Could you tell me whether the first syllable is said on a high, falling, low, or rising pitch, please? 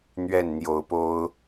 falling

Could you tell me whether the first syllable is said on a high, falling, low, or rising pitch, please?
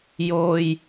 low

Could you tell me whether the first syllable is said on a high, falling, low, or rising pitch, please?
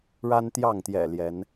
high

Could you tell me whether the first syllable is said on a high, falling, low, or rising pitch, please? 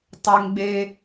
high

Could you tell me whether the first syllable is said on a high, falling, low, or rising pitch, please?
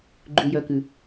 low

